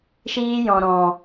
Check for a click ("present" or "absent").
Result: absent